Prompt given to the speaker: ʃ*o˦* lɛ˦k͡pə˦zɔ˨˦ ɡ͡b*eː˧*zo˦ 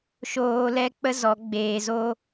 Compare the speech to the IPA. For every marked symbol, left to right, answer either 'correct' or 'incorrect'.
incorrect: oː˦, correct

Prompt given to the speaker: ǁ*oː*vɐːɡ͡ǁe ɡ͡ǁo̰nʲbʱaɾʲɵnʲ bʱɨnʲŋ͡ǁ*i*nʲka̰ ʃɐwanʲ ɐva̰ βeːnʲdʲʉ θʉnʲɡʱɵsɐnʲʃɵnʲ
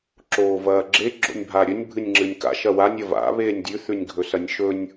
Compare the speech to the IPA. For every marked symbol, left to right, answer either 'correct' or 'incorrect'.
correct, incorrect: ɨ

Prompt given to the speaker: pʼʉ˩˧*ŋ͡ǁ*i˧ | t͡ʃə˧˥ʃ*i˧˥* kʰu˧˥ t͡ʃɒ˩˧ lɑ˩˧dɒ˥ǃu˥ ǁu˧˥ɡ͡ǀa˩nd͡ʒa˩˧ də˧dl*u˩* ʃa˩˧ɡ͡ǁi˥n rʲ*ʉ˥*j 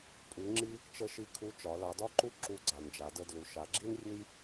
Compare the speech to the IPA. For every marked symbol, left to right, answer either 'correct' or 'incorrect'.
correct, incorrect: i˧, correct, correct

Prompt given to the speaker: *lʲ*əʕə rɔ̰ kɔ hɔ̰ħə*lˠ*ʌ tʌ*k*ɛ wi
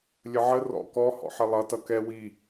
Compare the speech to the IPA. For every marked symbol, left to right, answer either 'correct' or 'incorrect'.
correct, correct, correct

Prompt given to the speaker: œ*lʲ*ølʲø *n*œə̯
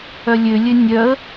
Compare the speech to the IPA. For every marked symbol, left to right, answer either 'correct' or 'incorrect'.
correct, incorrect: nʲ

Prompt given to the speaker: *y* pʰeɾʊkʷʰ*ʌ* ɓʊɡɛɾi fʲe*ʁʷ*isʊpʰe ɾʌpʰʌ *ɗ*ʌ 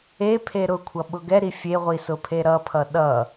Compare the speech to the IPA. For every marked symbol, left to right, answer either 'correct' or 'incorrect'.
incorrect: e, correct, correct, correct

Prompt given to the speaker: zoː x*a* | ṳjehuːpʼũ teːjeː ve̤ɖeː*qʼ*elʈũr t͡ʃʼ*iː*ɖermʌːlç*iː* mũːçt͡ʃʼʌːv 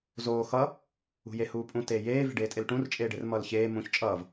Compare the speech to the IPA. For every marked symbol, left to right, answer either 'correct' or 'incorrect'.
incorrect: ʌ, incorrect: tʼ, incorrect: eː, incorrect: eː

